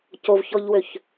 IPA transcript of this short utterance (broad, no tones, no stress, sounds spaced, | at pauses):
c o v ç ɔ ʎ w ø ç